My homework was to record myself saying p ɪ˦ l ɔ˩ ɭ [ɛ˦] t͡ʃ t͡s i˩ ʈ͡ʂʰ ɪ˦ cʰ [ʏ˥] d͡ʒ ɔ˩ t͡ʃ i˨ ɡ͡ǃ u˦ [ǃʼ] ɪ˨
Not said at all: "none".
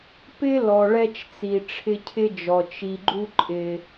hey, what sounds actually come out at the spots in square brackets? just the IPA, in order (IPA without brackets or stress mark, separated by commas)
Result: ɛ˦, ɪ˥, ǃʼ